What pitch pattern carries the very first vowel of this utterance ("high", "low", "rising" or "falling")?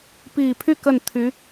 low